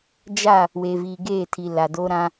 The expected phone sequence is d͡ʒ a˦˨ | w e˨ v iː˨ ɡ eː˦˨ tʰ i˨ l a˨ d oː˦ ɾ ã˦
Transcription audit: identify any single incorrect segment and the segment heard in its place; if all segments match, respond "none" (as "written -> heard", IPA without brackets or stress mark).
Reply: none